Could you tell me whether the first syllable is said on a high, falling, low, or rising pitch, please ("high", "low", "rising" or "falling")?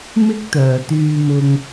high